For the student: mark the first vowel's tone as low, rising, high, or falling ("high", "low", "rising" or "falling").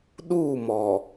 falling